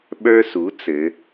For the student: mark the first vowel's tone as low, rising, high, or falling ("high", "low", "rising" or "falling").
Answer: high